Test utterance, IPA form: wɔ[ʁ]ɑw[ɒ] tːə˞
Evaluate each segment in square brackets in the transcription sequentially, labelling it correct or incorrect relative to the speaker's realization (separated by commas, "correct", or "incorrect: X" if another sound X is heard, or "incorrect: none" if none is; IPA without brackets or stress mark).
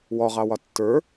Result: correct, correct